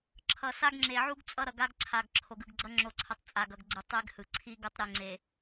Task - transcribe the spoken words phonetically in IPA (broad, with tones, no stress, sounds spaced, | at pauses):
ǁʰ ʌ˨ s a˦ ɡ ŋ͡ǁ e˨ ʕ u˦ ɡ t͡sʼ ʌ˦ ɾ ʌ˨ ɡ a˦ ɡ ǀʰ a˨ ɡ ǁʰ o˨ ɡ ɯ˨ ɡ ɡ͡ǀ ʌ˦ ŋ͡ǁ o˨ ǀʰ ʌ˨ tˤ t͡sʼ a˨ ɡ ʌ˨ ɡ ɡ͡ǀ ɯ˨ tˤ e˦ ɡ h ɯ˨ ǀʰ i˦ ɡ u˨˦ tˤ ɾ e˨ ŋ͡ǀ e˨